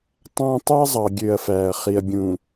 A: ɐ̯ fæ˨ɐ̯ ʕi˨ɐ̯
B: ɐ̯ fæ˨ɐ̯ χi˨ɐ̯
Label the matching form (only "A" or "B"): B